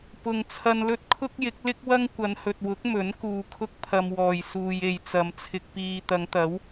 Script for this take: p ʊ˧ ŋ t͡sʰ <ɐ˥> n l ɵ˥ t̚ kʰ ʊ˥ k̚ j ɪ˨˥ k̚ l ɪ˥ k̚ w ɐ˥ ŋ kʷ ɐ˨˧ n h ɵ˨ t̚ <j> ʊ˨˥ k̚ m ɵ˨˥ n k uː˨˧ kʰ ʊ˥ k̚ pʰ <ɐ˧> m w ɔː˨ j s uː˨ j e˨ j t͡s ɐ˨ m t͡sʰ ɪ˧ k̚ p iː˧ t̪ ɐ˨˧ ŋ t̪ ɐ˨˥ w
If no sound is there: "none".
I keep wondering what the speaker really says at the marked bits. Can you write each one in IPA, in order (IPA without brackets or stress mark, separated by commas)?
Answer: ɐ˧, w, ɐ˧